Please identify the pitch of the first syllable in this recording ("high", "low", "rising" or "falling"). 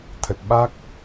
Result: low